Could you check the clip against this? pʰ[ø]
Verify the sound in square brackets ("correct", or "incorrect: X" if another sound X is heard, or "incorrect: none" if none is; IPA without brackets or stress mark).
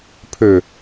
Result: correct